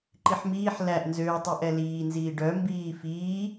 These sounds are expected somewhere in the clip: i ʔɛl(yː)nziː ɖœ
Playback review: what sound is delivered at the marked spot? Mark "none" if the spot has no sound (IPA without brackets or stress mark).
iː